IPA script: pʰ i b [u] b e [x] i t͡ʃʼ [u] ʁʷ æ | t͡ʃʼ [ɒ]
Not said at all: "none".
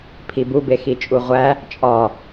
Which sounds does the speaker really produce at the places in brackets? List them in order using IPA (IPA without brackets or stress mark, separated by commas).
u, x, u, ɒ